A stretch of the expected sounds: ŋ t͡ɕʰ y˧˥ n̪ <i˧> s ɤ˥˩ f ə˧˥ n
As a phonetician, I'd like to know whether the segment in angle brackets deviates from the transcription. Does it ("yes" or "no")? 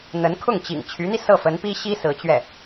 no